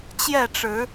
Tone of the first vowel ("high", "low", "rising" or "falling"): falling